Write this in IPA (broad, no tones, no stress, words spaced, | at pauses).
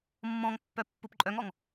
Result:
mːɔ̃ŋpːœ pːupǃʼœŋɔŋ